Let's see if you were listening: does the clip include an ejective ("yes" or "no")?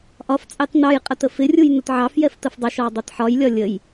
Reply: yes